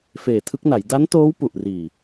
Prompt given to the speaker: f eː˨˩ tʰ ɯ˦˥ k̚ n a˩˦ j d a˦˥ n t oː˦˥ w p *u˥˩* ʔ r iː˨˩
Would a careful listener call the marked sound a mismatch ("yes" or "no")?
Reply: yes